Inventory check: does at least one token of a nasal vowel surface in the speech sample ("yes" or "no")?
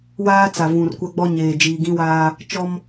yes